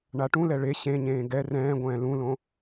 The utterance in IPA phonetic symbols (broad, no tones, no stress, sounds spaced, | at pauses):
ɳ a ʈ ũ l ɛ ɭ e ɕ ẽ ɲ ẽː ɡ ɛ r ɛ̃ː ɡʷ ɛ̃ː l ũ l õ